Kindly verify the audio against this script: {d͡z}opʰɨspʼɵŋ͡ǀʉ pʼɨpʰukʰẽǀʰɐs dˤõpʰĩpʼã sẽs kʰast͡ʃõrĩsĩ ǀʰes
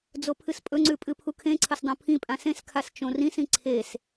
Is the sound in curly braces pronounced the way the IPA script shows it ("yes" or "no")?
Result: yes